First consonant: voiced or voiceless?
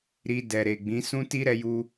voiced